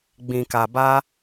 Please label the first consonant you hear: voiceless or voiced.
voiced